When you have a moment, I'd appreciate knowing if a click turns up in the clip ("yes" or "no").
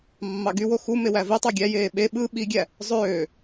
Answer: no